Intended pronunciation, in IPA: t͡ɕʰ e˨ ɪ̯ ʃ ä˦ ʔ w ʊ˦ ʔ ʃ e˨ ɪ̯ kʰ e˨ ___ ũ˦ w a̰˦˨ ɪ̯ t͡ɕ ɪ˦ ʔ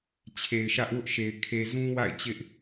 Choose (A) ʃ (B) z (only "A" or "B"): B